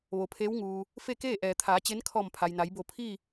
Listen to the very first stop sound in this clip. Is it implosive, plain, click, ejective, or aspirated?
aspirated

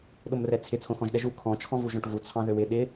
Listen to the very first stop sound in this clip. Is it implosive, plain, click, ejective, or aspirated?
implosive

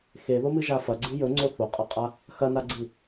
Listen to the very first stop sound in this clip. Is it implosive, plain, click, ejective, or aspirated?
click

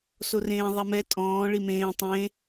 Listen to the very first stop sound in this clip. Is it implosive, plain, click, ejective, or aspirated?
ejective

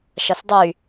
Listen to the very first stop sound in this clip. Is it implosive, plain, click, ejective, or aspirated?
plain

